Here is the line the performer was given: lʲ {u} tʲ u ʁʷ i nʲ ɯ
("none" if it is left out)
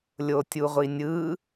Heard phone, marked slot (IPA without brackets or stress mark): o